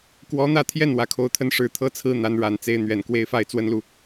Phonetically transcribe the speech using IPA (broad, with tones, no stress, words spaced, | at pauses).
kwɔ˧˥n̪ä˥˧t̪ʰjɛ˥˩n wä˧˥kʰo˧˥ʊ̯t̪ʰə˥˧n ʂɻ̩˥˩t̪ʰɤ˥t͡sʰɹ̩˥ n̪a˧˥nɻa˨˩nt͡se˧˥ɪ̯ n̪ɥɛ˨˩n kwe˧˥ɪ̯fa˥˩ɪ̯ t͡swə˥nlu˨